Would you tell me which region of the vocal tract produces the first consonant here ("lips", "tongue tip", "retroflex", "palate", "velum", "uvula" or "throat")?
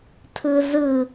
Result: tongue tip